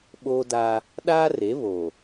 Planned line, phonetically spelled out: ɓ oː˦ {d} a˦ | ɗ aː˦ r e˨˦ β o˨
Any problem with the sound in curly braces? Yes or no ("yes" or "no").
no